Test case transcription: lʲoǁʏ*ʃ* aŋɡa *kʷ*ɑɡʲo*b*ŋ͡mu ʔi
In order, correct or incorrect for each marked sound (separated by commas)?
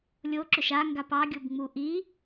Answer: correct, incorrect, correct